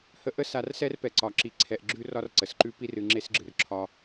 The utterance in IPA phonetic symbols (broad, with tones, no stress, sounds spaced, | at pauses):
h ə˦ ʔ ə˦ s a˨ r s ɛ˦ r p ɛ˨ ǀ ɒ˨ ǁ i˨ ǀʰ ɛ˨ ʔ ɡ͡ǁ ʉ˥ r ɒ˥ r ǀ ə˩ s ǃ ʉ˥ p i˦ r ɨ˨ ŋ͡ǁ e˥ s ɡ͡ǁ ɨ˩ r ǁʰ ɒ˦